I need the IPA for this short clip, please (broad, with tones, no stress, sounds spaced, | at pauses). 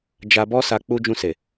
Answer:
d͡ʒ a˧ b ɔ˦ s a˧ k͡p u˦ d͡ʒ ũ˧ s e˨